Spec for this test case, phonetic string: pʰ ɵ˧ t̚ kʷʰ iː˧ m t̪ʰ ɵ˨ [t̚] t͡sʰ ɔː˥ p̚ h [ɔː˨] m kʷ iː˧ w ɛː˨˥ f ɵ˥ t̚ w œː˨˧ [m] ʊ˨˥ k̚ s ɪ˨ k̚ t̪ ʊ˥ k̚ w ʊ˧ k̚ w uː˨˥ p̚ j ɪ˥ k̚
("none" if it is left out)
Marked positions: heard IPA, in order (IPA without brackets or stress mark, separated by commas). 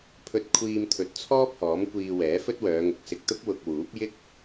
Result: t̚, ɔː˨˥, ŋ